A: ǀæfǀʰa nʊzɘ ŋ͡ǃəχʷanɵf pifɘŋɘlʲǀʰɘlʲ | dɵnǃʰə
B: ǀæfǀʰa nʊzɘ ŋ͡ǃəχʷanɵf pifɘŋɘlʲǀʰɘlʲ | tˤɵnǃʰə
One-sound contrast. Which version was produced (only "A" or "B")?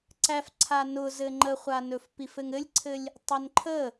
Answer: B